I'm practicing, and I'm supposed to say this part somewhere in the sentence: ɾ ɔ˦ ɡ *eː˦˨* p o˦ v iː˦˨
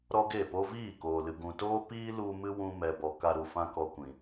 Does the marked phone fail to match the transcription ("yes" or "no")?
yes